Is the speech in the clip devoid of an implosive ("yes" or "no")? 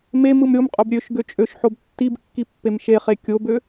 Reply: yes